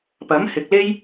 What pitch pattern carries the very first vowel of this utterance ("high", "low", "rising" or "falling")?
rising